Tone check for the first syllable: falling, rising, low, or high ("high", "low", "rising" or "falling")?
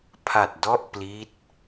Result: low